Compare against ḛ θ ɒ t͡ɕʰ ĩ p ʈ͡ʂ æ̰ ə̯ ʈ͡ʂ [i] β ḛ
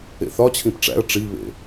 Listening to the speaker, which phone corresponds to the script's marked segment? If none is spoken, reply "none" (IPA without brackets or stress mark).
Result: i